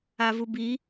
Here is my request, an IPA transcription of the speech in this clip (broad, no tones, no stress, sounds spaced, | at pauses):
a v u b i